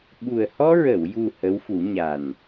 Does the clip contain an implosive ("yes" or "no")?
yes